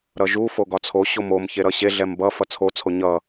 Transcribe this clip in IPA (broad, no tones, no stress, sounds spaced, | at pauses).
ɾ ʌ ʒ u f o ɡ ɒ t͡sʰ o ɕ o m o m ç e ɾ ʌ ɕ e ɮ ɛ m b ʌ f ʌ t͡sʰ o t͡sʰ o ɲ ʌ